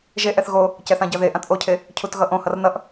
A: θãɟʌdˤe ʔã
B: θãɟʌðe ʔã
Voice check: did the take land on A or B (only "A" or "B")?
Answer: B